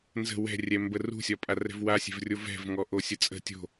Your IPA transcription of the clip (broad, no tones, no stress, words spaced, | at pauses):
nzə̤ wɛ̤rʲɛ mbərṳsʲɒpʼa rɛ̤vwasʲɛ̤vrʲo vɛ̤vŋɔ ʔosʲət͡sʼə̤ tʲo̤